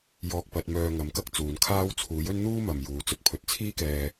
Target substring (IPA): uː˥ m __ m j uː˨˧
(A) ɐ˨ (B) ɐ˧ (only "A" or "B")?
A